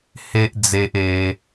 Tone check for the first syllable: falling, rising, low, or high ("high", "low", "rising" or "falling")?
high